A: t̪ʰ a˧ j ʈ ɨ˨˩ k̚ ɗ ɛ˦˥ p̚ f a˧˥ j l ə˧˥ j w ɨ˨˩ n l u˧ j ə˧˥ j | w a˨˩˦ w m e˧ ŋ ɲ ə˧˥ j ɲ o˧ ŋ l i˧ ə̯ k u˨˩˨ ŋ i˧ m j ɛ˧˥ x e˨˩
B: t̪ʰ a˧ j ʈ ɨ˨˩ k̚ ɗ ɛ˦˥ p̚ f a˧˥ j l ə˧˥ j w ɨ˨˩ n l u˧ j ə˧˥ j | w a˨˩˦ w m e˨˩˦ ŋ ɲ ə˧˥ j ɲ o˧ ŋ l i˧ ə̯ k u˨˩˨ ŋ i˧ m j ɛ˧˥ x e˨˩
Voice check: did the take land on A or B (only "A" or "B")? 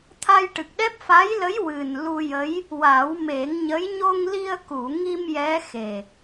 B